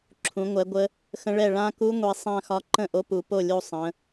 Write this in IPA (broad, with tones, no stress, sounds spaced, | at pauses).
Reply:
ǁʰ ũ˩˥ ŋʷ ɛ˩˥ ɡʷ ə˧˥ | x ə̃˧˥ ɭ ɛ˥˩ ɭ ã˥˧ k u˧˥ ŋʷ i˩˧ sˤ ã˥˧ x ɒ˧˥ ǃ ə̃˥˩ ʔ o˧˥ p u˩˧ p o˥˩ lʲ u˥˩ sˤ ə̃˩˧